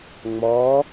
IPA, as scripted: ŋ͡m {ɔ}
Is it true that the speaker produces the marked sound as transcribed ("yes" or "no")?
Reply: yes